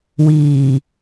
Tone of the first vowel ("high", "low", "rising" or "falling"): low